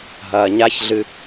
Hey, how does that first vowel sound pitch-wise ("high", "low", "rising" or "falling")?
low